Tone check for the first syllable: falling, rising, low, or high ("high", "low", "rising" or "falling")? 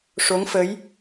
rising